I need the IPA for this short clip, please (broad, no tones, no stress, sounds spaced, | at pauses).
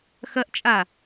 x ɐ ʔ t͡ʃʼ a